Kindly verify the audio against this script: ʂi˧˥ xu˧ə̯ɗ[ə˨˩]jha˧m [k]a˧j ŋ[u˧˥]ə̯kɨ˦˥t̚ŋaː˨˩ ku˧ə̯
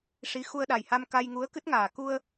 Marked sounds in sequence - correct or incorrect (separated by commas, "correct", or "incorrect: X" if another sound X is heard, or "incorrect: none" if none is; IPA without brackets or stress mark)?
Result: incorrect: a˨˩, correct, correct